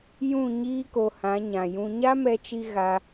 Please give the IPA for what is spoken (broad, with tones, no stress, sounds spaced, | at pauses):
j ũ˦˨ ɲ iː˦ k o˧ h ã˨˦ ɲ ã˨ j ũ˧ ɲ a˦ m ɛ˧ t͡ʃ i˧ ɣ a˧